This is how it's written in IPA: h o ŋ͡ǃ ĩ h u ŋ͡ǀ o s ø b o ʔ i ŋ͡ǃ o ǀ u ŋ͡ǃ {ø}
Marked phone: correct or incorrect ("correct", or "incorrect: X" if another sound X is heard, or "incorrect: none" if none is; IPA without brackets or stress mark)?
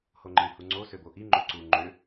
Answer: correct